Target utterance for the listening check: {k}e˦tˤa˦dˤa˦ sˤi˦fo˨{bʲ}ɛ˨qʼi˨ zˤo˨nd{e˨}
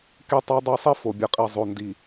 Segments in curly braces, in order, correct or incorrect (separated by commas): correct, correct, incorrect